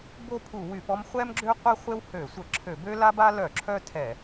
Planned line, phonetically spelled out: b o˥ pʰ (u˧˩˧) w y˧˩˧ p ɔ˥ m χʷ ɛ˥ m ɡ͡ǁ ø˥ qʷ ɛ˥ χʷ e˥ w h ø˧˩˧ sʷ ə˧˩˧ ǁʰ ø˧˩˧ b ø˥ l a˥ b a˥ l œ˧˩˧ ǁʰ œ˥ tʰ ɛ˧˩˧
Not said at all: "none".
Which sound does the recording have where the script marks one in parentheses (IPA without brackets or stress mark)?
u˧˩˧